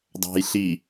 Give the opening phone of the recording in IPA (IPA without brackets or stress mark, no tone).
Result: dˤ